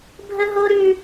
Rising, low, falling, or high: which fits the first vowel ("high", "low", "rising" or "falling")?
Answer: high